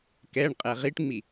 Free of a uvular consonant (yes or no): no